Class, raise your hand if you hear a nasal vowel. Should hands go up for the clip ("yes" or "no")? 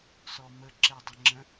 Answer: yes